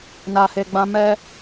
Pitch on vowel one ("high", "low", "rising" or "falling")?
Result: low